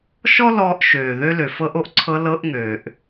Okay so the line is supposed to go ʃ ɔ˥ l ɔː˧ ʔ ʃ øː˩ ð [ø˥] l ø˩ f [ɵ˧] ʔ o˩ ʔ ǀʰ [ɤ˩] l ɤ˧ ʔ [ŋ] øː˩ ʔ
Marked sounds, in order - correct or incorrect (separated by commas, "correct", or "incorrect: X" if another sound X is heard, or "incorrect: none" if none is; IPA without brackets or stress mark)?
incorrect: ø˧, incorrect: ɤ˧, incorrect: ɤ˧, correct